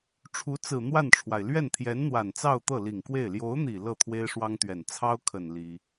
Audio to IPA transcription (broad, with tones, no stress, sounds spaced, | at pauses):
ʈ͡ʂʰ u˧˥ t͡s ɹ̩˨˩ n̪ w a˥˩ n ʈ͡ʂʰ w a˩ ɪ̯ l ɥ ɛ˥˩ n t̪ʰ j ɛ˧˥ n n̪ w a˨˩ n t͡s ɑ˥˧ ʊ̯ t̪ ɤ˥˩ l i˨˩ ŋ k w e˥˩ ɪ̯ l j o˧˥ ʊ̯ n̪ i˨˩ l ɤ˥˩ t̪ʰ w e˥ ɪ̯ ʂ w ɑ˥ ŋ t̪ ɥ ɛ˨˩ n t͡sʰ ɑ˥ ʊ̯ kʰ ə˨˩ n l i˥